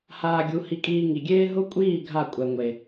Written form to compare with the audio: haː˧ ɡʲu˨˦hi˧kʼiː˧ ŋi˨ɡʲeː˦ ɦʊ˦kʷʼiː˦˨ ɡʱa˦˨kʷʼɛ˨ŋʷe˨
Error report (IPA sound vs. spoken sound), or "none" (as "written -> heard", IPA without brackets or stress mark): none